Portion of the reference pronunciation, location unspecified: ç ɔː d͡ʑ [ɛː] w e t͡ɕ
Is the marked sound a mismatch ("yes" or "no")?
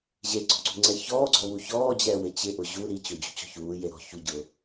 no